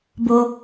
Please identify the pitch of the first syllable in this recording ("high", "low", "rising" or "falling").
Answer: high